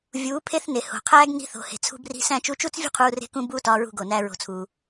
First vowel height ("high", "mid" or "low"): high